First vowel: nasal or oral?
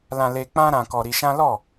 nasal